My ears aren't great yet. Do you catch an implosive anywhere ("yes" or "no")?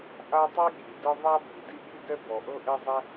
yes